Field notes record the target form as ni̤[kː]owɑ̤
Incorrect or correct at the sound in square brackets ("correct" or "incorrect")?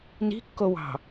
correct